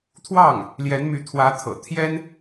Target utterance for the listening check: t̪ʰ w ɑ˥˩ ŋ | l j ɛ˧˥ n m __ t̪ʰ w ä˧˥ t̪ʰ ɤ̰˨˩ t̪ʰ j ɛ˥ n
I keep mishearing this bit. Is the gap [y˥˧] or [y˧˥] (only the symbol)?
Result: y˧˥